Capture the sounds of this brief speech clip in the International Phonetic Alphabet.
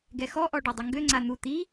ɡ ɛ x ɔ ʔ ɔ ɖ ɔ dˤ ɘ ŋ ɡ ø ŋ͡ǀ a n̪ u t̪ i

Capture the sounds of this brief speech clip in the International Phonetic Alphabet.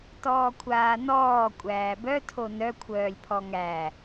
t ɔː kʷʰ aː n ɔː kʷʼ æː b œ tʰ o n œ kʷʰ œː lʲ pʰ ɔ ŋ æ

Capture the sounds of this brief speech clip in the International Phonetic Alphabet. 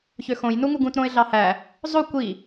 ç ø x õ j n u ŋ u ɡ ũ t ɾ õ ɪ̯ ɮ ɑ h æ | zˤ o kʷ i

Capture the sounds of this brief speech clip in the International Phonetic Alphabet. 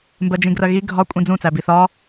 m b ɜ d͡ʒ ĩ ɡ r ɜ ɣ i ɡʱ ɒ kʷʼ ĩ d͡z ũ t͡s æ b i θ ɒ

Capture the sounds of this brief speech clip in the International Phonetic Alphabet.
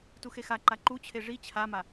t u x e x a ǃ a ǃ u t͡ɕʰ e ʐ i t͡ɕʰ a m a

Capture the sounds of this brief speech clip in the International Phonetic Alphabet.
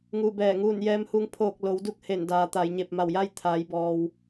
ŋ uː˧˩ b ɛː˧˩ ŋ uː˧˩ n j ɛː˧ m h u˧ ŋ pʰ oː˧˩ k̚ l o˩˧ w d u˧˥ k̚ h e˧˩ n d aː˩˧ t̪ a˩˧ j ɲ e˧˩ p̚ m a˧˩ w j a˥˨ j t̪ʰ aː˩˧ j b ɔː˩ w

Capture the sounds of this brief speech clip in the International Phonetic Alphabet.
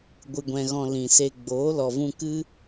ɡʷ ɨ˧ ɡʷ ɛ̃˧ ɣ ɔ̃˧ l ĩ˨ s e˧ ɡ͡b oː˨˦ l ɔ˨ v ũ˧ k ɨ˦

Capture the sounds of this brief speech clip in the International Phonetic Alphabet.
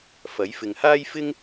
f ɐ˨˥ j f ɪ˨ ŋ h aː˥ j f ɪ˥ ŋ

